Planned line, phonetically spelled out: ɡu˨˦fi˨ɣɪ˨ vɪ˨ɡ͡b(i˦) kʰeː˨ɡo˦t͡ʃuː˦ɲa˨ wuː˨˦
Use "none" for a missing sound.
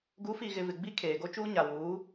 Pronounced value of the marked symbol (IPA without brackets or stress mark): i˦